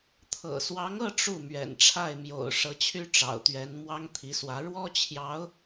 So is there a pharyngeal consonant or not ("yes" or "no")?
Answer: no